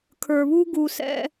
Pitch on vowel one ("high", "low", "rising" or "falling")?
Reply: low